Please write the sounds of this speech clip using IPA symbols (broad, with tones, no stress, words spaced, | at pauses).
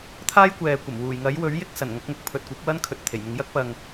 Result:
t̪ʰaː˥jkʷɛː˨kʷɐ˨˩m wuː˨˩jŋɐ˨˥jwɵ˨˥ɥjɪ˥k̚ sɐ˨˩nŋɐ˨˥k̚mʊ˨k̚ pʰɵ˨t̚kʷɐ˨˥p̚wɐ˥n kʰɵ˨˥t̚t̪ʰe˨˩jmɪ˨˧ŋ jɐ˥k̚ pɐ˨ŋ